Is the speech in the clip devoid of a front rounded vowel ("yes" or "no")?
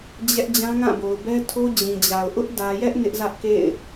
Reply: yes